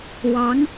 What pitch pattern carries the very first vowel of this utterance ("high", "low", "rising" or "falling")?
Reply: rising